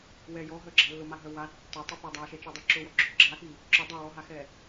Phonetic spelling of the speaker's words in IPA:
w ɛ j ɔ ɦ œ ɡ͡ǁ a lː ʊ m a ɦ œ w a tː œ tˤ ʊ p œ dˤ a ʃ ɛ t͡ʃ i dˤ œ ǁ ʊ w ɔ ɡ͡ǁ ʊ ɡ͡ǁ a x i | ǁ ʊ dˤ œ w ɔ ɦ a x ɛ

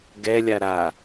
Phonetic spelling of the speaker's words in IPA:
ɡ ɛ lʲ a ɾ a

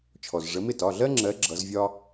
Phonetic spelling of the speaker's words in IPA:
t͡ʃʰ ɔ˩ z ʐ ə˨˦ m ɪ˥˩ t ɒ˩˧˩ ɮ ɜ˥ ŋ͡ǁ ɜ˨˦ ɡ͡ǁ ʌ˨˦ z vʲ ɒ˥

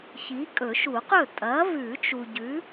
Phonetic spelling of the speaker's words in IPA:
ç i˨˥ kʼ ɵ˨˩˦ ʃ u˨˩˦ q ɵ˥˩ tʼ ɐː˨˥ v ʉ˨˩˦ t͡ʃ u˨ ɟ ʉ˨˥

